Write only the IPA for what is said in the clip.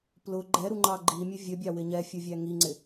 plʊ ɡ͡ǃɛɾuŋ͡ǃɑ ɡ͡ǃimʲə vʲəbʲɑwɪ ɲɛfʲuvʲæ ŋiŋ͡ǀɪ

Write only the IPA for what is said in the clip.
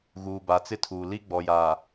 ɣuː˨ba˨t͡sɪ˦tʰuː˨ li˦ɡ͡bɔ˨jaː˨

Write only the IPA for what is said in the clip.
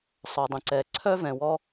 sˤœ˩dˤə̃˩ǀɛ˩ ǀʰœ˥ vɛ̃˩wɔ˧

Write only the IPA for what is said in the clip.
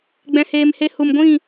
ɡ͡bɛ̃˨heː˨mhe˧ hu˨mɡʷĩ˦˨

